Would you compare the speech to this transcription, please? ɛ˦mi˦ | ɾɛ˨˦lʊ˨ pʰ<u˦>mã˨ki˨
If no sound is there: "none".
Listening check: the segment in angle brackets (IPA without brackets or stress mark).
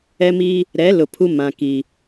u˦